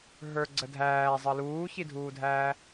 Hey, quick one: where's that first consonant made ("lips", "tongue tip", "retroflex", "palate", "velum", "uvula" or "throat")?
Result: throat